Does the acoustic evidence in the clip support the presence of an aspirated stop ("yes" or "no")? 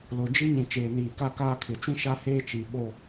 yes